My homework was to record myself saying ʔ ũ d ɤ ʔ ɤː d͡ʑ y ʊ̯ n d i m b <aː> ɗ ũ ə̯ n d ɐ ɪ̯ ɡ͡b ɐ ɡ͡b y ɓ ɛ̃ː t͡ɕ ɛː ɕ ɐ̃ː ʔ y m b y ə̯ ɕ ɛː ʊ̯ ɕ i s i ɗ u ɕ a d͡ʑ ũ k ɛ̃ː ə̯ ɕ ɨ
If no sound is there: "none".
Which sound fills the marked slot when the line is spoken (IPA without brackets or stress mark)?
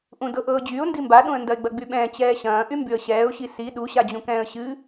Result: a